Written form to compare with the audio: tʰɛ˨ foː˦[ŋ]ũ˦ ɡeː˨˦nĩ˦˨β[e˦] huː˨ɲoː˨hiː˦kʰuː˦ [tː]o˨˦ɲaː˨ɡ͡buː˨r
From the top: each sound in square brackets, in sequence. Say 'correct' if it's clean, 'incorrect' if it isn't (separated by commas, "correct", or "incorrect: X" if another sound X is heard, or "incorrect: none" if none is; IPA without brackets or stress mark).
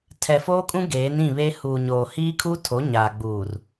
incorrect: kʼ, correct, incorrect: tʰ